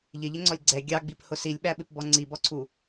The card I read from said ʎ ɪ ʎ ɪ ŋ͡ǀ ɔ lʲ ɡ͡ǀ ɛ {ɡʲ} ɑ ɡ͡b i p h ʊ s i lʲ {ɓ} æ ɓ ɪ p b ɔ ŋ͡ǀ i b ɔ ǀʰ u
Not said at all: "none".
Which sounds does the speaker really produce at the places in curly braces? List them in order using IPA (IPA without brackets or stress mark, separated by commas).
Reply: ɡʲ, ɓ